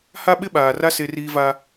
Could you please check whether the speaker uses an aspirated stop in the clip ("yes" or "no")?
no